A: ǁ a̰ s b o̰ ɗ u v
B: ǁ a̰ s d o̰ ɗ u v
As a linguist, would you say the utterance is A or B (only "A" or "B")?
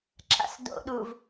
B